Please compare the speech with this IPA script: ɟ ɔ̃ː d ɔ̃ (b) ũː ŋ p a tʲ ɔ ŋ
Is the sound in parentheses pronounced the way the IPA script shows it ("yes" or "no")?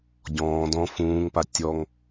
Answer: no